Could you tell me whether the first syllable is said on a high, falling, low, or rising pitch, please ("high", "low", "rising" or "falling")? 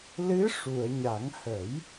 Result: rising